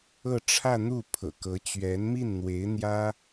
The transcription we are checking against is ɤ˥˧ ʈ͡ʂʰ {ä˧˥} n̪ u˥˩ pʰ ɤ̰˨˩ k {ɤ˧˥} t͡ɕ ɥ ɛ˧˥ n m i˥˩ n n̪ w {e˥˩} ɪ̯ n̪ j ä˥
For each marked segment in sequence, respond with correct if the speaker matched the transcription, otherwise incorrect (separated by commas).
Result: incorrect, correct, incorrect